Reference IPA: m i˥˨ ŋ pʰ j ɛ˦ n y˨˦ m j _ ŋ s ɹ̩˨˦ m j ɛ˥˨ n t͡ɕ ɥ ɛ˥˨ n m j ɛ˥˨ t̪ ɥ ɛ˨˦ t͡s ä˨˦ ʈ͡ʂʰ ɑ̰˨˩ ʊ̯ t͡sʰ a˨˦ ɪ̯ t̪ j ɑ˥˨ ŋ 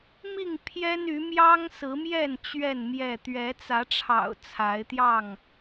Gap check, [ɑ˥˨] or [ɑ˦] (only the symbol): ɑ˦